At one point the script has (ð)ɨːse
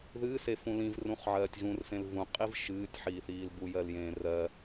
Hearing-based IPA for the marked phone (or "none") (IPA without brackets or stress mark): ð